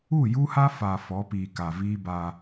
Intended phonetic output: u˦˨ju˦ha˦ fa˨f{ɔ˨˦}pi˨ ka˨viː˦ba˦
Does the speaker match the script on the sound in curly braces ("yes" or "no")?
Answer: yes